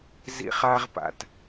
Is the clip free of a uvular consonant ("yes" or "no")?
no